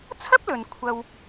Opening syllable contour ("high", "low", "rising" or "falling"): high